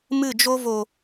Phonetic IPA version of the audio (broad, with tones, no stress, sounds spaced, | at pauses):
m ɨ˦˨ d͡ʒ o˦ v o˨